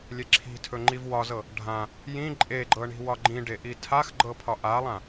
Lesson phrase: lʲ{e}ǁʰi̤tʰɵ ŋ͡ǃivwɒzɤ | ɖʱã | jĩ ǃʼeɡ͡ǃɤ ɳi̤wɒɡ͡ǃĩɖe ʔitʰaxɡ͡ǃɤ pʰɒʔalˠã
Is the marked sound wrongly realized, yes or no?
no